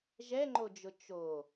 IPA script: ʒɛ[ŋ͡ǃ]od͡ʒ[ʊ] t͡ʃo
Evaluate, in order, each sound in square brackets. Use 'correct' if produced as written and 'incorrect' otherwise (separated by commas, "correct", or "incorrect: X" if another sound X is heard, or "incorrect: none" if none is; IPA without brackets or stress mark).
correct, correct